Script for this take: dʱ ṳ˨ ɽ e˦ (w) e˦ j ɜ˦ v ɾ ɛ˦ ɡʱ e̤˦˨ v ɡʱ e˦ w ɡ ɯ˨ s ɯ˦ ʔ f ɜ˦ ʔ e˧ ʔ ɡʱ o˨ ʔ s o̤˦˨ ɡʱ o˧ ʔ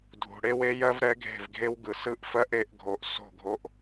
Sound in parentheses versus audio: correct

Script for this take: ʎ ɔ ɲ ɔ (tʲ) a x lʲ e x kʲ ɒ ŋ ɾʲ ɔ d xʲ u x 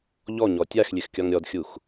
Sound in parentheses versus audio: correct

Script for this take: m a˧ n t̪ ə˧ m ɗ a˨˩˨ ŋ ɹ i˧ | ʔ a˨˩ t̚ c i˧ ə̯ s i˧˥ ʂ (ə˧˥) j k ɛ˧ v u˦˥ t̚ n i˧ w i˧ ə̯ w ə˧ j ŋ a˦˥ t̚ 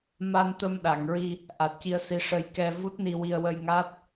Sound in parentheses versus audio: incorrect: ə˧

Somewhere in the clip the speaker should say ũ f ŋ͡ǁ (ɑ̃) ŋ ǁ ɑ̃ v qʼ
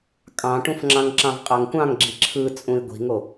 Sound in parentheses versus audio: correct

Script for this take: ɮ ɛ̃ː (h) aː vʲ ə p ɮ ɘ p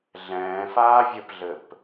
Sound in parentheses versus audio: incorrect: f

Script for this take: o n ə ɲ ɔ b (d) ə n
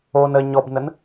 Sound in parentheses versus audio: incorrect: n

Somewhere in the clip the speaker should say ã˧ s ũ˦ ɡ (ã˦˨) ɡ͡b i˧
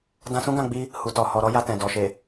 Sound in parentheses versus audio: correct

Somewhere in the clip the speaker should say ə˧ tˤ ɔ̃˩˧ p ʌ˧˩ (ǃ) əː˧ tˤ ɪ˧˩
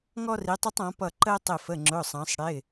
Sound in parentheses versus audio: correct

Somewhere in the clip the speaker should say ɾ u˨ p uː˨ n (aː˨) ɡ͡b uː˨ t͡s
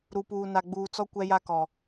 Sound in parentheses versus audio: incorrect: a˨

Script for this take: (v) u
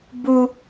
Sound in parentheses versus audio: incorrect: b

